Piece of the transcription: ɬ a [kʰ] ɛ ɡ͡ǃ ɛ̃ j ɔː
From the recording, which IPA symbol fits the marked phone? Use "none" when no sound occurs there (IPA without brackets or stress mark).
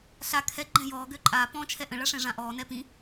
kʰ